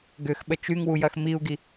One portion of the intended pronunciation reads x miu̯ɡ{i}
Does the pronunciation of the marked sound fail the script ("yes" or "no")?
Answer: no